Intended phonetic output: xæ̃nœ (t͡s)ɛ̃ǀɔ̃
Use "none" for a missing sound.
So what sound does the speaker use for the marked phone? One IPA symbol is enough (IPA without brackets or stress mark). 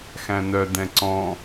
d